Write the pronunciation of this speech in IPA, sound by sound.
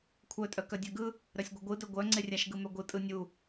kʷʰœtʼœ kœdʲœɡɯ | ɾœsʲɡʷœɡʷɯ dœɡʷœŋ͡ǀe rʲaʃɡɯmœɡʷɯ tʼɯnʲu

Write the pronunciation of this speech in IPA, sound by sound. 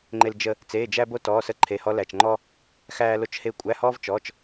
ŋ͡ǃe˥ld͡ʒə˥ | t͡seː˧˥˧d͡ʒæ˥bo˥ tɔː˧˥˧sə˥ ǃʰe˧˥˧hɔ˥læ˧˥˧t͡ʃ ŋ͡ǃɔ˥ | xæː˥lo˥t͡ʃheː˥ kʷʼæ˧˥˧hɔː˥v t͡ʃɔ˧˥˧t͡ʃ

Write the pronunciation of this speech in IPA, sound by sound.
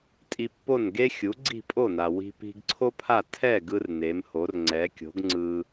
tʼi˧pːo˥˩nɡe˥ xʲu˩˥ɡ͡ǀi̤˥˩pʼo˥˩na˩ wi̤˧pi̤˧ɡǀʰo˥pʰa˥˩ tʰɛ˥˩ ɡɯ˥rne˩˥mho˩˥r ŋ͡ǀɛ˩˥kʲo̤˩˥ɡŋ͡ǀɯ˧

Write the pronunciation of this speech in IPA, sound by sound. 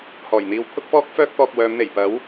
hɔː˨˩jn̪iː˧w pʰʊ˥k̚fɔː˥k̚fœː˥k̚ t̪ɔː˧k̚wœː˨˧mn̪e˨˩j pɐ˨˥w

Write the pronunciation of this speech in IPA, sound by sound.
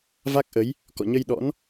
va˦˥k̚ʔə˨˦j | kɔ̰˧˨ɲə˧j ɗɔ̰˧˥n

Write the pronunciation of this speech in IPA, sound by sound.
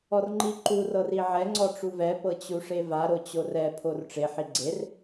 ɔrŋ͡ǃiǃur ɤriʕɛ ŋ͡ǀɔʈ͡ʂuvɛ pɤt͡ɕuʂeva ɾot͡ɕorɛ pʰorʈ͡ʂe ħiɡ͡ǀer

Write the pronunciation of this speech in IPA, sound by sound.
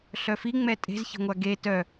ɬœfi ŋ͡mɛtʼe̤zçe̤ŋʷa ɡe tœ

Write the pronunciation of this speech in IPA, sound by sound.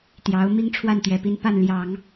t̪jɑ˧˥ʊ̯ mi˥ŋʈ͡ʂʰwa˥˩nt̪ɥɛ˨˩pi˥˧n pa˥˩nljɑ˨˩˦ŋ

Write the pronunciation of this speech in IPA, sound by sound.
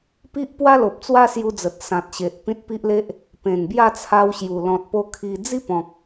pi˦ʔpwa˦lo˨p̚ t͡swa˦sju˧d͡zə˨t̚ sã˨t̚ɕe˨ʔ pĩ˦t̚pi˦ʔle˦ʔ | pẽ˨˩nbja˥˧t͡sʰa˧wɕju˨˩ lɔ̃˨t̚po˧ kʰi˧ d͡zi˦pɔ̃˨k̚

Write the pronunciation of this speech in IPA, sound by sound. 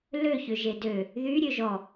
lø çøʒedø | ðy ɾʲøʒɔ

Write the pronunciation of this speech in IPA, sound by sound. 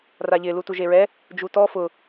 raʎɪ lutuʒeɹɛ | d͡ʒutɔ fʊ

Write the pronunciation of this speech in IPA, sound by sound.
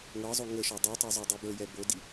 ŋɤzˤo ŋəʃɔ dˤutˤo zˤə˞dˤibə˞jɛ bodi

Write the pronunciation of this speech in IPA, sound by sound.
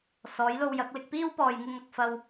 sɔː˨˥jlo˧wjɐ˨˥k̚ lɪ˧k̚piː˥wpɔː˨jŋɪ˧ŋ ɐ˧k̚fɐ˧w

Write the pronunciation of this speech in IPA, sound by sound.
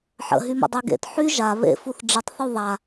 ħə̰ɦymə̰ dˤyɡḛt ħy ʒa βḛ fuθɖ͡ʐətˤθu ðˤa

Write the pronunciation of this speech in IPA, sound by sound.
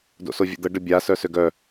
do̰sovʲə̰d̪ə ɖəbʲa sœsøɡœ

